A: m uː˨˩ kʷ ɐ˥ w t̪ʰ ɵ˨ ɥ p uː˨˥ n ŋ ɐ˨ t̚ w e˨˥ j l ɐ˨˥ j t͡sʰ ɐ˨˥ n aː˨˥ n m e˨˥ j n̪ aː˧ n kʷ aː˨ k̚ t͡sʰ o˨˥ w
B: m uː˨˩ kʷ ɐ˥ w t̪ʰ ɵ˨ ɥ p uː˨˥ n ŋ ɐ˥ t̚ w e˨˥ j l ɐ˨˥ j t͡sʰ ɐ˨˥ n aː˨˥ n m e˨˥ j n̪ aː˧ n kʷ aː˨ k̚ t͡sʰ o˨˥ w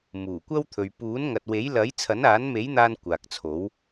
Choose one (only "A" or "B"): A